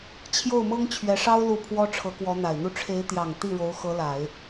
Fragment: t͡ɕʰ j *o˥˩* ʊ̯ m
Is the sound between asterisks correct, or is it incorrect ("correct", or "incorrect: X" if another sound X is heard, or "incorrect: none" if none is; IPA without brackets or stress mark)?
correct